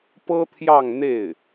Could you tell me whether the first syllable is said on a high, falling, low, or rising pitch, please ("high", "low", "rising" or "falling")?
high